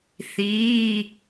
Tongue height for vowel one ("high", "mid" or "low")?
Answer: high